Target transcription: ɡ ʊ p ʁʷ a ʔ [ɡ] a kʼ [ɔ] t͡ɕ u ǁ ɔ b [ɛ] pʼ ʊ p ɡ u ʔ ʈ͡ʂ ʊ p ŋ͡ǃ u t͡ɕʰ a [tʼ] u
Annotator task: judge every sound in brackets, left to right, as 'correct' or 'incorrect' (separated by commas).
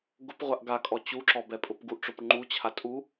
correct, correct, correct, correct